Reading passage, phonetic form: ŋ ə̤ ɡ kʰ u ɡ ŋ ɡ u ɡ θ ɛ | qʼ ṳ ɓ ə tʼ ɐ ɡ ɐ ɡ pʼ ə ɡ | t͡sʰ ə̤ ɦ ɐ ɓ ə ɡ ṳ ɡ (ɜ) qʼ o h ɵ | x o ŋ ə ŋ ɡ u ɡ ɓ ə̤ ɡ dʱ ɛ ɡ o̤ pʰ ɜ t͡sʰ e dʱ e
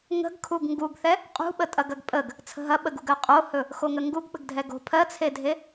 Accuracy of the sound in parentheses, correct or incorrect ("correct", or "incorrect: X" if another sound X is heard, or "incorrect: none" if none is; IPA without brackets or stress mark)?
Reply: correct